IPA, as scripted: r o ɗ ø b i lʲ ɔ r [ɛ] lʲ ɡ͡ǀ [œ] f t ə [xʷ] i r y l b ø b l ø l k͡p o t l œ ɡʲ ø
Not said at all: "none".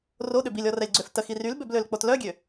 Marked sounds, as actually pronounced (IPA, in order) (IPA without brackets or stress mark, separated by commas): ɛ, ø, x